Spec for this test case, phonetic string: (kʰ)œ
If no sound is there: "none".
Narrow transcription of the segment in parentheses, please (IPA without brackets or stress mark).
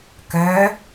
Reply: k